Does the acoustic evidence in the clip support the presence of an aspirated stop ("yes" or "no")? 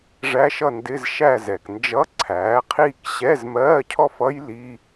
yes